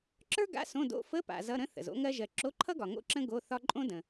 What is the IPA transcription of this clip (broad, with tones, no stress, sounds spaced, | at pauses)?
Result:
ǁ ə˞˥ ɡ a̰˧˥˧ s õ˧˥˧ d o̰˧˥˧ f ə˧˥˧ p a̰˨ z ʌ˧˥˧ ɾ ə̃˥ θ ə̰˨ z o̰˥ ŋ ɜ˥ ʒ ɜ˨ ǁ o˧˥˧ ǃʰ ʌ˥ ɡ ɒ˨ ŋ o̰˥ ǁ ə̃˥ ɡ o˧˥˧ θ ɒ˥ ǃʼ õ˥ d ə̃˨